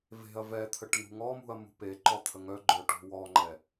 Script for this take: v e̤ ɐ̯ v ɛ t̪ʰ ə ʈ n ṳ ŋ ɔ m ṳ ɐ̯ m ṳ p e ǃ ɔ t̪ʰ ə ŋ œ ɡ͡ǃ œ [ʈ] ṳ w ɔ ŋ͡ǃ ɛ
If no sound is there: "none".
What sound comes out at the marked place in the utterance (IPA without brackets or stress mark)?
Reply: ʈ